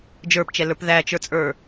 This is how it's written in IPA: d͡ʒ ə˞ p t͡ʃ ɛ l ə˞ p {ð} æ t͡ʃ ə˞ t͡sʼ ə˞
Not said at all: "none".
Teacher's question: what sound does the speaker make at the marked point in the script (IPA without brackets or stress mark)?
ð